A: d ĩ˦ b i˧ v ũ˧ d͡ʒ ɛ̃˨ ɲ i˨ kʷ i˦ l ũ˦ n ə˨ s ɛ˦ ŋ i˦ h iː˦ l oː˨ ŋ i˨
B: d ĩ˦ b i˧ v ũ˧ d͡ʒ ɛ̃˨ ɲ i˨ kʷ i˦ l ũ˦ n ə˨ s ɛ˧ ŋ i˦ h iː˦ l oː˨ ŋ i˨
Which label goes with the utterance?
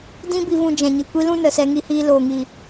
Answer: A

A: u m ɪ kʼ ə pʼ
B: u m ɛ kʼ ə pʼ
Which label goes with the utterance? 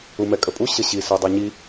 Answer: B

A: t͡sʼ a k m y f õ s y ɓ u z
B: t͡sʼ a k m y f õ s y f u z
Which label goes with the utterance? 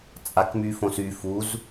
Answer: B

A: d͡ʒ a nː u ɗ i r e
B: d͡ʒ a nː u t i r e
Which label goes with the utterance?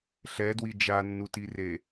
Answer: B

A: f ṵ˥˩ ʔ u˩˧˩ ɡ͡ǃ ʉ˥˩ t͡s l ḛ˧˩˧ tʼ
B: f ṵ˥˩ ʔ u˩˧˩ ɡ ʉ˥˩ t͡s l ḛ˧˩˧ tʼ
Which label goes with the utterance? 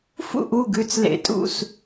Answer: B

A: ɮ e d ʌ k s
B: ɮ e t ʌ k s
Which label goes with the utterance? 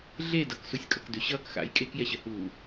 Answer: A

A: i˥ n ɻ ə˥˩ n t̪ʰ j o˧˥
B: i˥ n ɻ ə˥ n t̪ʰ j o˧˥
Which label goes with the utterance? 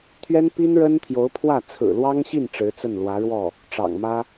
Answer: B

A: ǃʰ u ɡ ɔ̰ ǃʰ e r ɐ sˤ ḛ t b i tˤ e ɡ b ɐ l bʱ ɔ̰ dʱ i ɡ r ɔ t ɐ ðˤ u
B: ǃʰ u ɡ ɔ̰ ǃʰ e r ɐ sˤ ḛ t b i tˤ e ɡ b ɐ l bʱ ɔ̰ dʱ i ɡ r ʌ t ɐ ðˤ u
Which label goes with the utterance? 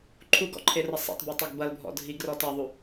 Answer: A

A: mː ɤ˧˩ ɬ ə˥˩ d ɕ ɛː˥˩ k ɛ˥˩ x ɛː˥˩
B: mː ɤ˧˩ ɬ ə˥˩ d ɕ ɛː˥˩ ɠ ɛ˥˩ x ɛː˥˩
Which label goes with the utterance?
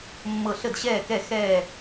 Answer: A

